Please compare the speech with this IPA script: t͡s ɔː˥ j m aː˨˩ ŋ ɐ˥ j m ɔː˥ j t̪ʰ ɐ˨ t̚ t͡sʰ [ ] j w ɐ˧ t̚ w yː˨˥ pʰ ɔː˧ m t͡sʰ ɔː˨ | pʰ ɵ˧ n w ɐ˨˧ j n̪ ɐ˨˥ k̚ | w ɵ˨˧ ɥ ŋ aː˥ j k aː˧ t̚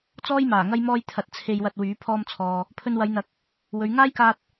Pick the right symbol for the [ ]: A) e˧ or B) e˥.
A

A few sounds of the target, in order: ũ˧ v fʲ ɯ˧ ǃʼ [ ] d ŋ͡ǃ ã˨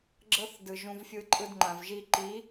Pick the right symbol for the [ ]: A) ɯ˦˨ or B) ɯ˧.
B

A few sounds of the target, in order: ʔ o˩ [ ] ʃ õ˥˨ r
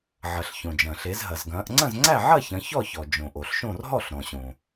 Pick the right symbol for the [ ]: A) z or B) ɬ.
B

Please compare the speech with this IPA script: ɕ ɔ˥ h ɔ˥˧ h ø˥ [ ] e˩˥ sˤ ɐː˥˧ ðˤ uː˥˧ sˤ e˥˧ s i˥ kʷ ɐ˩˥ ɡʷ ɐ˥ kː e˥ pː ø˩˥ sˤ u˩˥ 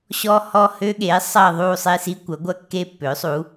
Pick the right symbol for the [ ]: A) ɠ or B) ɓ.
A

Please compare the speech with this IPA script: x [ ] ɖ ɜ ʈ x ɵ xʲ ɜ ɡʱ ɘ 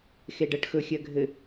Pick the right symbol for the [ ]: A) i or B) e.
B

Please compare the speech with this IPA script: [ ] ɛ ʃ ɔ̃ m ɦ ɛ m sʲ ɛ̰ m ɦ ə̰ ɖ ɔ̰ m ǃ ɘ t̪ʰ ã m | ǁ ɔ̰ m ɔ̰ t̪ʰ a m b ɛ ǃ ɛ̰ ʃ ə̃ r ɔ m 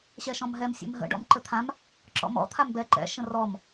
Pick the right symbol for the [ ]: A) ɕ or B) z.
A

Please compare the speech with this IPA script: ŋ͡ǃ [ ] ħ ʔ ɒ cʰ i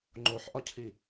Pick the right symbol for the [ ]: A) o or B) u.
A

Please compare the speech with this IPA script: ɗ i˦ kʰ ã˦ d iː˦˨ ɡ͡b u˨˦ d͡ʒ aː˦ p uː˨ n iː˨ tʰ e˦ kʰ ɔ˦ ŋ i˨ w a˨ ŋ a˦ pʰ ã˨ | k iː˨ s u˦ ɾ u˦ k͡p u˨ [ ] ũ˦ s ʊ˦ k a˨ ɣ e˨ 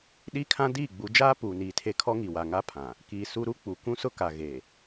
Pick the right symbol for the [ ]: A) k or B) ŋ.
A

